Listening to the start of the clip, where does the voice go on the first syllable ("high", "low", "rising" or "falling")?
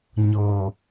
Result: low